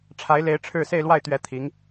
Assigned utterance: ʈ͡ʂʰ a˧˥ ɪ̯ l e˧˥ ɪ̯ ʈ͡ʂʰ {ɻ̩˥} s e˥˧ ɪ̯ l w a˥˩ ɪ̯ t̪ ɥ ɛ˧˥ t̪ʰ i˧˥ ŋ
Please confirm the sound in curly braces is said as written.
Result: no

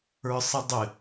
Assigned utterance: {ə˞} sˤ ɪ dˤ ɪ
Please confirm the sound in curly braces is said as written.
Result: yes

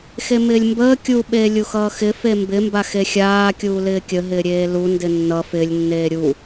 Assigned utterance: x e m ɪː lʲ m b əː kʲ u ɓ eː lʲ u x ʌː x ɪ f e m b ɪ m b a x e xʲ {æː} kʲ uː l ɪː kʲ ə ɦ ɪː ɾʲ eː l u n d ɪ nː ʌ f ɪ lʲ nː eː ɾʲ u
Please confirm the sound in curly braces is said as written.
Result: no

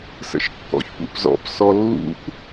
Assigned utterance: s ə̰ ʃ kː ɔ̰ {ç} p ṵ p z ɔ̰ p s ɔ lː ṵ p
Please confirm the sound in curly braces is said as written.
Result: yes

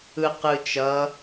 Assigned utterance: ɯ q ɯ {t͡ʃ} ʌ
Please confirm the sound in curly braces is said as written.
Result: yes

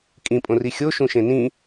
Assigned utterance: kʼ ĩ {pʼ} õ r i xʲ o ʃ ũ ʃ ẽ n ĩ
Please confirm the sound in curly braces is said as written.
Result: yes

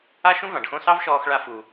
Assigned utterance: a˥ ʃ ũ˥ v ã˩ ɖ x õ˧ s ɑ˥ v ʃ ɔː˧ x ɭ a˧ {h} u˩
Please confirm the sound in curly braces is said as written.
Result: no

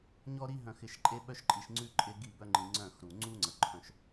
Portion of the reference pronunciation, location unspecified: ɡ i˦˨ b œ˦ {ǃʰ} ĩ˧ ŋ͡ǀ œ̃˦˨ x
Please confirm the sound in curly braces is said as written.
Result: no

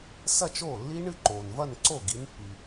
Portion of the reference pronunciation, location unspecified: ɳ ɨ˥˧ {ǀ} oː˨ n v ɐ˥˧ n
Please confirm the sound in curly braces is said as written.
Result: no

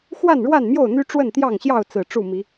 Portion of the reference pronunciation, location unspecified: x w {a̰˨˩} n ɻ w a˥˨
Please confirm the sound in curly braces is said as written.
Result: no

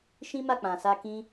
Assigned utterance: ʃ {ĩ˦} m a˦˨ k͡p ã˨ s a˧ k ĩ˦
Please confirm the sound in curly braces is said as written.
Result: yes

